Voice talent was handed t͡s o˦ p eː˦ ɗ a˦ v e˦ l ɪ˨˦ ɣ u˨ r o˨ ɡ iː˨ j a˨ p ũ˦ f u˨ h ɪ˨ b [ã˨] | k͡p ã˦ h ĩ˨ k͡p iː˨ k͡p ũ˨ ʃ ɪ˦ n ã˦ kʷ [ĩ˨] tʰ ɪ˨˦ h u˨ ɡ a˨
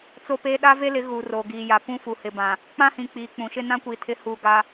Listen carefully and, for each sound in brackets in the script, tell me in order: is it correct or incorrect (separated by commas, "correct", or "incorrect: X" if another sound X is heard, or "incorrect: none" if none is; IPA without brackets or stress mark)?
correct, incorrect: i˨